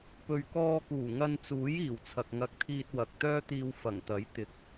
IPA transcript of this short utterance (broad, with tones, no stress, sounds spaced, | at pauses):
p ɵ˨ ɥ k ɔː˧ k uː˨˩ ŋ ɐ˧ n t͡s uː˨˥ j iː˨˩ w t͡sʰ ɐ˨ k̚ ŋ ɐ˧ k̚ t̪ʰ iː˧ t̚ w ɐ˨ k̚ t̪ œː˥ t̪ iː˧ w f ɐ˨˩ ŋ t̪ ɐ˨˥ j t̪ ɪ˨ k̚